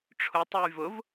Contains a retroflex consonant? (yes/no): yes